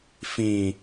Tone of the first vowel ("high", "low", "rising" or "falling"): low